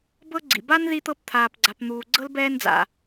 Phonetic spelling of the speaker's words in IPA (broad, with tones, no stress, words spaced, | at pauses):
bɤ˥ ɡ͡ǀḭ˩ba˥n ði˦t̪ɤ˦p t̪ʰaː˨pɡ͡ǀa˨pn̪uː˨ɡ͡ǀɤ˥l bɛː˥nd͡za̰˩